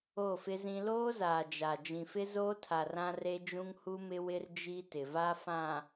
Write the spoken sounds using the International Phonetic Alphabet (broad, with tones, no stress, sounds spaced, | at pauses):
o˦˨ f ɪ˦ z ĩ˦ l oː˦ z aː˨ d͡ʒ a˨ d͡ʒ ĩ˨ f ɪ˦ z oː˦ tʰ a˨ r ã˦ r e˦ d͡ʒ ũ˦ ŋ h u˦ m ɪ˦ w ɪ˦ r d͡ʒ i˦ t ɪ˨ v a˦ f ã˨